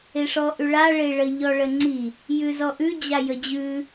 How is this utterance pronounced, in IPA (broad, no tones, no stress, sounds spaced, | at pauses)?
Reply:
e ʂ ɔ ʔ ʉ ɭ a ɭ e ɭ ə ʎ ɔ ɭ ə ŋ͡ǀ i | j ʉ z ɔ ʔ ʉ d͡ʑ a j ə d͡ʑ ʉ